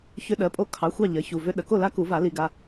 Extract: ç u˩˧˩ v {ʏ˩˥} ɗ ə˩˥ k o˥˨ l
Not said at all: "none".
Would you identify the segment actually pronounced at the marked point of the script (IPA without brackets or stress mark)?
ʏ˦˥